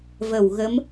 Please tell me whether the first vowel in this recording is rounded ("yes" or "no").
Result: no